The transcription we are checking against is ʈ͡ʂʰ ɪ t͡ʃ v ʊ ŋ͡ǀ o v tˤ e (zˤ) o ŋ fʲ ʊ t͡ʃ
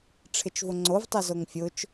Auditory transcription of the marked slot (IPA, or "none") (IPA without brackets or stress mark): z